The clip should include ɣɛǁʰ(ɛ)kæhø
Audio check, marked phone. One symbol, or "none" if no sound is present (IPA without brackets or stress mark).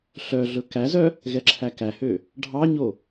æ